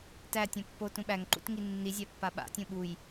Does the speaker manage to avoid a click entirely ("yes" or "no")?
no